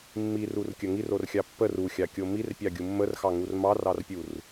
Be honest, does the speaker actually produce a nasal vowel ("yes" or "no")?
no